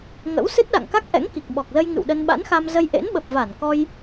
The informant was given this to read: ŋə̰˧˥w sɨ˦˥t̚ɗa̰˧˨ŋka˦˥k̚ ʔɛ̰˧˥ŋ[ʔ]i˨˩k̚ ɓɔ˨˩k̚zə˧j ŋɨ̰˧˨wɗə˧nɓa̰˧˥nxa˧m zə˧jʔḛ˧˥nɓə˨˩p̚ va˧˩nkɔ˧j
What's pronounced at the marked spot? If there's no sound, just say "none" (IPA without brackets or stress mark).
k